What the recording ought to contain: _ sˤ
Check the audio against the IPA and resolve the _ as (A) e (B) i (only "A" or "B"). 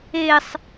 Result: A